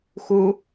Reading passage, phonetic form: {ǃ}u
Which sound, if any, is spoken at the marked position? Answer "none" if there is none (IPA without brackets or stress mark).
x